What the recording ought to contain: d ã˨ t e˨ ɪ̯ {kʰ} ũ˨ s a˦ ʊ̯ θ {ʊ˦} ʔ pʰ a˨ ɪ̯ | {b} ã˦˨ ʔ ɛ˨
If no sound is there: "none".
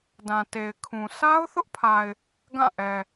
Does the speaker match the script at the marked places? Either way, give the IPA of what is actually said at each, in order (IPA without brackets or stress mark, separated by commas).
kʰ, ʊ˦, ɡ